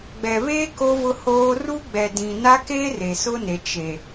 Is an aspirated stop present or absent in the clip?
absent